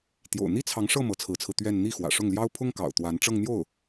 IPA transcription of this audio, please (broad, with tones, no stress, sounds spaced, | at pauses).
t̪ j o̰˨˩ ʊ̯ n̪ i˥ t͡sʰ ɑ˧˥ ŋ ʂ ɤ˥˩ m ɤ˧˥ t͡sʰ ɹ̩˧˥ t͡sʰ ɹ̩˧ t̪ ɥ ɛ˥˧ n n̪ i˥˩ x w ä̰˨˩ ʂ ʊ˥˩ ŋ l j ɑ˥ ʊ̯ pʰ ʊ˥ ŋ k ɑ̰˨˩ ʊ̯ t̪ w a˧˥ n ʈ͡ʂ ɤ˥˧ ŋ n̪ j o˥˩ ʊ̯